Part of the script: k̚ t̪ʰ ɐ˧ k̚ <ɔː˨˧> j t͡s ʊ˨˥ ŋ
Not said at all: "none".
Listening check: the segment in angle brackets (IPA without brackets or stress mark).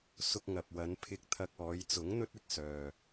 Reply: ɔː˨˧